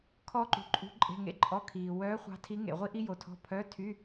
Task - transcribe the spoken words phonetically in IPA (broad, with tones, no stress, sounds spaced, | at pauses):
kʰ ɔː˥ ǃ ṳ˨ ǃʼ ṳ˧˥ ǃʼ e̤˧˥˧ ŋ ḛ˥ ǃʼ ɔ˧˥˧ kʰ iː˨ w œː˧˥ χʷ ɑ̤˧˥ tʰ i˧˥ ŋ ḛ˨ ʁʷ i˥ ʔ i˥ j o˨ tʰ ɔ̤˧˥˧ pʰ œ˧˥˧ tʰ y˧˥˧